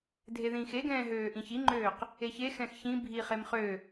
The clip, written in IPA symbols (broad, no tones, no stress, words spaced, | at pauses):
dʱeðĩːxeɡɛ̃ː ɦøːʔĩçiŋ͡ǃøːq | eçexɛ̃x çĩ bʱiχem χø